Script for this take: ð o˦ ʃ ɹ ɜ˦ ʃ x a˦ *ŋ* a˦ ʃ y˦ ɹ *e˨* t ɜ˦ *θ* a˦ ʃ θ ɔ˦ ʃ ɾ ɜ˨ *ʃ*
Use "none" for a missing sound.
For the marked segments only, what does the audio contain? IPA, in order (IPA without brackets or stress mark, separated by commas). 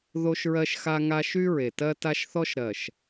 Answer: ŋ, e˨, t, ʃ